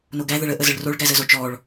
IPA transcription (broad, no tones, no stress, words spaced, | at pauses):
noɡæ ðəɭə ʔəzəɭroɭ ɡæzəzot͡ʃɔɭ